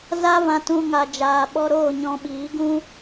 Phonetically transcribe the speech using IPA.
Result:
za˦vã˧tũ˧ ŋa˨d͡ʒaː˨ɓɔ˧ɾoː˦˨ ɲɔ̃˧ɓiː˨˦ɡũ˦

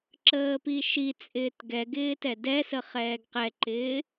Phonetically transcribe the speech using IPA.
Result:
ǁəːpiʃit͡sʼɪːt ɡɛɡɪː tɛdɛsə χɛːɡqɛǃɪː

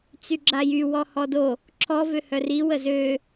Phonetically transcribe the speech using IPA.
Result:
t͡syɡ͡ǁajy wɔhɔdo | ǁʰɔ vøhœri wəzø

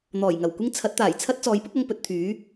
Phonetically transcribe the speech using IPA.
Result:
n̪ɔː˨˩jŋɐ˨˩wkʷɪ˥ŋ t͡sʰɐ˨˥t̚t̪aː˨˩jt͡sʰɐ˥t̚ t͡sɔː˨˥jpʊ˥k̚ɐ˧ŋ pɵ˥t̚ t̪ʰyː˨˥

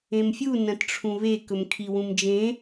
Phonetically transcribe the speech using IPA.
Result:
ẽmfʲu nɐ̃tʈ͡ʂʰũβe kɵmkʰiwũmd͡ʒẽ

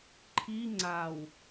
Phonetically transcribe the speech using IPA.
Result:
ǃʰi ŋ͡ǀaw

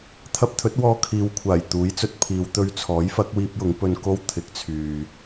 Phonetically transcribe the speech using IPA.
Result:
t̪ʰɐ˧p̚t̪ʰɵ˨˥t̚wɔː˧ kʰiː˨wkʷʰaː˨˩j t̪uː˨˥jt͡sɵ˨t̚pʰiː˨˧w t̪ɵ˧ɥt͡sʰɔː˨˥jfɐ˨˥k̚ wiː˥p̚jʊ˨˥ŋ pɵ˧nko˥w t̪ʰɪ˨˥k̚t͡sʰyː˨

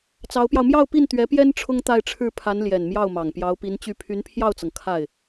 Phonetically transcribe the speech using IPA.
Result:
t͡sɑ˧˥ʊ̯pjɑ˧ʊ̯ mjɑ˥˧ʊ̯pi˥˩n t̪ɥɛ˧˥pjɛ˥n ʈ͡ʂʰʊ˥ŋt̪a˥˧ɪ̯ʈ͡ʂʰɻ̩˥˩pʰa˧˥n ljɛ˨˩nmjɑ˥˩ʊ̯mɑ˨˩ŋ pjɑ˧˥ʊ̯pi˧˥nt͡ɕy˥˩ pʰy˧˥npʰjɑ˥˩ʊ̯t͡sɤ˩ŋ kʰa˥˩ɪ̯

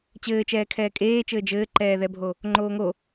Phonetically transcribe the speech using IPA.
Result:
t͡ɕɘːt͡ʃɛː kʰɛːkʼeːt͡ʃɘː d͡ʒɘːǃɛːðɛbʱo | ŋ͡ǃoːŋo

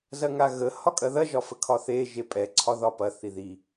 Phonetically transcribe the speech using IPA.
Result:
zɐŋaɣə hɒkʼɐðɐ ʒɒfəkʰɒθe ʒepʼɛ ǀʰɒðɒpɐ θiði

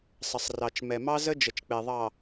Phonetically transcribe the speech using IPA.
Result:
sˤə˨sˤrɑ˨t͡ʃ mɛ˨mɑ˦zə˦ d͡ʒə˨t͡ʃk͡pe˨ðˤɑ˨

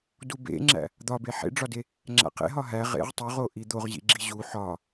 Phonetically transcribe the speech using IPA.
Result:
dubḛŋ͡ǁæ̰ | d̪ɒbe ħḛɖ͡ʐɒde | ŋ͡ǁæ̰qḛ ɦɒɦæ ʁḛʁ tˤoʁo ʔid̪oʁ ʑḭɡ͡ǁiʑu ħɒ

